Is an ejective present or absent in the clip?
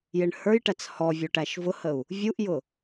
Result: absent